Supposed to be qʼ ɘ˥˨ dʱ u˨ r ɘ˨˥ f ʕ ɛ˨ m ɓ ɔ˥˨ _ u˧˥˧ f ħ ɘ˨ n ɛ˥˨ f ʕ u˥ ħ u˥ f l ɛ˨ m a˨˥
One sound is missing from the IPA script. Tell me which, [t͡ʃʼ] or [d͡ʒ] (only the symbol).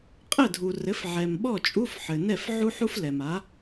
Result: t͡ʃʼ